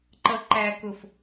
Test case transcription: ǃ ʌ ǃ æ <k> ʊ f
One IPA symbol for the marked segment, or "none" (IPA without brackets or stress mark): k